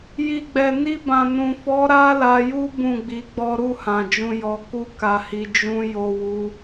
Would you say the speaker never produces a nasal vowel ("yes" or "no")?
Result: no